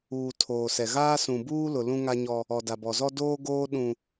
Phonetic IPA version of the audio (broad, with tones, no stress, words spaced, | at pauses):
uː˨ tʰoː˨sɛ˨ɣaː˦ sũ˨buː˦lʊ˨ lũ˦ŋa˦ɲɔ˦ | ɔ˨da˨bɔ˨zɔ˦ doː˦ɡoː˦ ɗũ˦